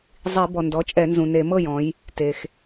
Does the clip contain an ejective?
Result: yes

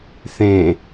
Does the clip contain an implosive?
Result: no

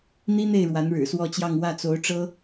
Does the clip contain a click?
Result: no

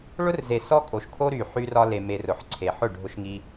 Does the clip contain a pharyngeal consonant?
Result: yes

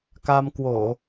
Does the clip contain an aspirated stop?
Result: no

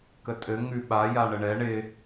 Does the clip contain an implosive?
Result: yes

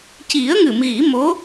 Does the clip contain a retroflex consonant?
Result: no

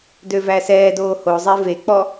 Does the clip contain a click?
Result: no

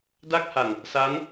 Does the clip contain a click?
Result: no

